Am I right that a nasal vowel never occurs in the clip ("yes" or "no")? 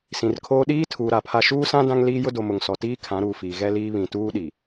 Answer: no